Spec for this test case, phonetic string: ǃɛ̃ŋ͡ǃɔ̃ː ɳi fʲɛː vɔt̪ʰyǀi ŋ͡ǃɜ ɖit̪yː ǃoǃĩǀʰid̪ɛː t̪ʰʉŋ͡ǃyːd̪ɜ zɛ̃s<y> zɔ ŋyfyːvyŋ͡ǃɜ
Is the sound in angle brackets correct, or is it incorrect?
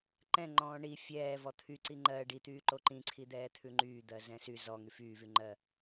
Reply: correct